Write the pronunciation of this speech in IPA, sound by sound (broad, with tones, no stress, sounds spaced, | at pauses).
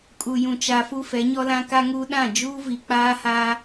kʼ u˨ j ũ˨ t͡ʃ a˨ f u˦ f ɛ˨˦ ɲ ɔ˦ l ã˦ k a˦ ŋ uː˦ ɗ ã˦˨ d͡ʒ uː˦ v i˨ k͡p aː˦ h aː˦